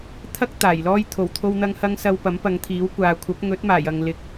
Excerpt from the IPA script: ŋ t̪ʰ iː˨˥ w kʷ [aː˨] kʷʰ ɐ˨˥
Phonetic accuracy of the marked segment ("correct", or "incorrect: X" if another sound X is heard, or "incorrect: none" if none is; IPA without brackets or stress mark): correct